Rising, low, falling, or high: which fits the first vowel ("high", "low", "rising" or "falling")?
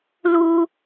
high